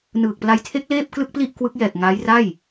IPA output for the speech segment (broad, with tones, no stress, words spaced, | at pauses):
nɯː˨˩k̚pla˧jtʰe˦˥k̚ leː˥˩p̚klɯ˥˩k̚pli˥˩ʔ kwɯ˦˥k̚ jɛː˨˩k̚ ŋaː˦˥jra˥˩j